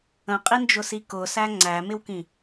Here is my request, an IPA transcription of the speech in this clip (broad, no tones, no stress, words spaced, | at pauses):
ə̃qʼind͡ʒʊsi kʊsæ ŋ͡ǀæmɪwkĩ